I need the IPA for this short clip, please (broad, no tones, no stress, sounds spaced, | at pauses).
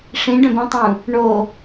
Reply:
ʂ ĩ ɖ œ̃ b ĩ tˤ ũ | ɳ o